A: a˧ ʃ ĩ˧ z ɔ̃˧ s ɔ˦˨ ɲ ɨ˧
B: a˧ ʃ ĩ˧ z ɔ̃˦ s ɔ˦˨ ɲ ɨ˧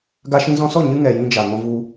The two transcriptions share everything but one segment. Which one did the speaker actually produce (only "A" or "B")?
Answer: A